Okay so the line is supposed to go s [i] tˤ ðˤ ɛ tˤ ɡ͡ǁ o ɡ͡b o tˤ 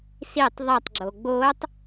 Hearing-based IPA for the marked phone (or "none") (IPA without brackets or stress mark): i